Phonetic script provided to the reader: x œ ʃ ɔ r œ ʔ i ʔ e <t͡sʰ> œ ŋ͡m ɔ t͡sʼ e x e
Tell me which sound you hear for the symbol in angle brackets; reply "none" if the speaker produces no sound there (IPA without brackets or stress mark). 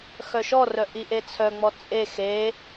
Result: t͡sʰ